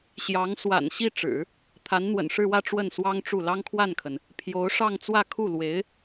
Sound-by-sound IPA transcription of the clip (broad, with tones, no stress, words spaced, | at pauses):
ɕjɑ˧˥ŋ swa̰˨˩n ɕi˥˩ ʈ͡ʂɻ̩˨˩˦ | t̪ʰa˧˥nn̪wə̰˨˩nʂɻ̩˥˧wä˥˧ ʈ͡ʂwə˥˩nswɑ˥ŋʈ͡ʂu˥˩ lɑ˥ŋkʰwa˥˩nkʰə˩n | pʰjo˧˥ʊ̯ʂɑ˥˧ŋ t͡swä˥˧kʰu˥˩lwe˧˥ɪ̯